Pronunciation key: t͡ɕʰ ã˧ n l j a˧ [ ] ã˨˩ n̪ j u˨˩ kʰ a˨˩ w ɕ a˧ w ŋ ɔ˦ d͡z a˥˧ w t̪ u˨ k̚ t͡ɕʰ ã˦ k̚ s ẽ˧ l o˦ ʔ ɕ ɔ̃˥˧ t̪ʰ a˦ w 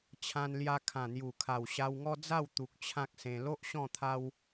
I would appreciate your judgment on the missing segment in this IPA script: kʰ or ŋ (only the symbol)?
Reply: kʰ